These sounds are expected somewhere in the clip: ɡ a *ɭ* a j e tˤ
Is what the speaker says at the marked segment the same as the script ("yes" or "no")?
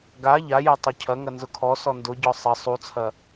no